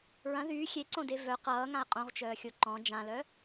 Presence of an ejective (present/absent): present